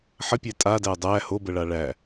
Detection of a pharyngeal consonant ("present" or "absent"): present